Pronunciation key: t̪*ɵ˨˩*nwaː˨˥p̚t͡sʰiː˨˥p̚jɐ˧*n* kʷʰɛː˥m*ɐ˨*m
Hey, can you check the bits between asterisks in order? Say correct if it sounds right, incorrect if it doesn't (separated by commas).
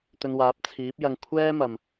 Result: incorrect, incorrect, correct